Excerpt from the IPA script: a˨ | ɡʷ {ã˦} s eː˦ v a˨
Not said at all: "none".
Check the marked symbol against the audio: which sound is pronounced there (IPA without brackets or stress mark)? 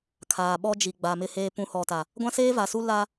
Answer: ã˦